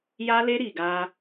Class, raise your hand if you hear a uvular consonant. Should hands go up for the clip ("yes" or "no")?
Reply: no